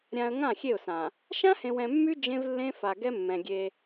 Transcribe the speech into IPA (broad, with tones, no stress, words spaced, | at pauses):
ɾʲã˨ə̯ ŋã˦˨xʲe˦˨ʊ̯sã˨ | ʃã˦hẽ˨wɛ̃˨mːy˦ d͡ʒẽ˦vlːẽ˦fa˨ ɡɛ˦mːɛ̃˨ɡʲe˦